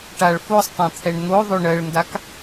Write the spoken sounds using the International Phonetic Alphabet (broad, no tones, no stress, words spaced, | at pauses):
ʈaɭ fosˤtˤɛ̃t̪ʰɛɳ n̪oðˤø ɳɜɭndak